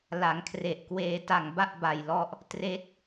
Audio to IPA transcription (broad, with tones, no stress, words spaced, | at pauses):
la˩˦ŋkʰre˨˩ʔkweː˧ ta˨˩ŋba˥˩ʔ ba˨˩jlɔ˦˥ʔ | tre˦˥k̚